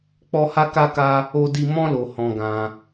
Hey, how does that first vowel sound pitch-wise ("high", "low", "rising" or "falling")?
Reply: high